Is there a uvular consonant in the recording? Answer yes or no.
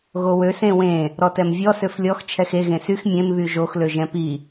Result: no